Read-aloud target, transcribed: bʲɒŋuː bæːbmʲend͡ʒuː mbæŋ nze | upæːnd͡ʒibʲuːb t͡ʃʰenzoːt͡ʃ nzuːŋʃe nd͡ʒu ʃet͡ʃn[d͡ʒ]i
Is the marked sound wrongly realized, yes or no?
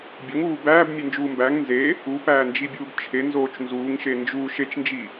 no